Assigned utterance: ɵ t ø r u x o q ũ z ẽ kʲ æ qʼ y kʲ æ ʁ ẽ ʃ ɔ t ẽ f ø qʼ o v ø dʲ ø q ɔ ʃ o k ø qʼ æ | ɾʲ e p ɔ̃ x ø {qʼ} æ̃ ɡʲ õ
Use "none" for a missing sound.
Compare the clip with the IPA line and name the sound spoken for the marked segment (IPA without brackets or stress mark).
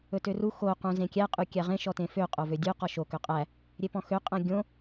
qʼ